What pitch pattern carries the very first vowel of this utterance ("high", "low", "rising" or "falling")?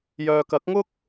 low